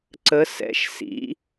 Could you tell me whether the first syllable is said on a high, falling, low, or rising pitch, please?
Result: rising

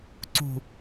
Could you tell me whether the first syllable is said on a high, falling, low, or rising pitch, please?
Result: low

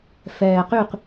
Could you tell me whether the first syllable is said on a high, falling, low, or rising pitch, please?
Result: low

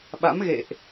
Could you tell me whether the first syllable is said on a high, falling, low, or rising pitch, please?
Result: rising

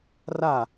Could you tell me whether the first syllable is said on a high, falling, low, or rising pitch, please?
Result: falling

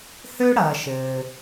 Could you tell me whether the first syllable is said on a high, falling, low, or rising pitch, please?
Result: high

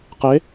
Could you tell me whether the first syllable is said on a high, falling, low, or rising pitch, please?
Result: rising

